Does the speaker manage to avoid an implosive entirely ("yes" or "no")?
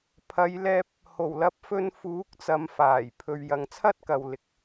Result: yes